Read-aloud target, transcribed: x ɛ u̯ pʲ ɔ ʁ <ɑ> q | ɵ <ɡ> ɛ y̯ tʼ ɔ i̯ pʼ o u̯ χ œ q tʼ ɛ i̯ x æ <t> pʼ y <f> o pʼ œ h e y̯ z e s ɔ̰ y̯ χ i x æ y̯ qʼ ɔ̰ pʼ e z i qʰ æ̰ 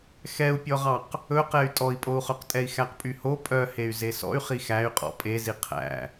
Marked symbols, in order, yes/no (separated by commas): yes, no, no, no